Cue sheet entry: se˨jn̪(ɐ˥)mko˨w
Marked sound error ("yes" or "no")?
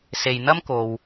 no